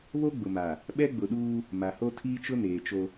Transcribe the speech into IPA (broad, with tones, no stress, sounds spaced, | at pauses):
β o˦ ɡ͡b ʊ˨ m a˨ | ɓ ɛ˦ ɡ͡b ʊ˨ ɗ uː˦ | m a˨ h o˦ tʰ iː˦ t͡ʃ ʊ˦ n eː˨ t͡ʃ o˦